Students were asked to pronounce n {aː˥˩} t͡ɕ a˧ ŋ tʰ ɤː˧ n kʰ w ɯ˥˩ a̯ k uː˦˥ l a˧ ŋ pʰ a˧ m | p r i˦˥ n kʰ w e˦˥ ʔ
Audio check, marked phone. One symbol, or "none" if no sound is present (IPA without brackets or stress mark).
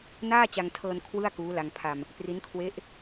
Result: aː˥˩